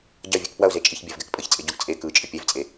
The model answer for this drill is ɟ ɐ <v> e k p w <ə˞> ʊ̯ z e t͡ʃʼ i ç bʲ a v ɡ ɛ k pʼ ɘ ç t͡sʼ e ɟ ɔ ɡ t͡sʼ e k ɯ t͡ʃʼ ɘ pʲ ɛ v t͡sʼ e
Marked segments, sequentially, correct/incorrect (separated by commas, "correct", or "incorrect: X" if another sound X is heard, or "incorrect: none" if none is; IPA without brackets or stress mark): incorrect: vʲ, incorrect: ɐ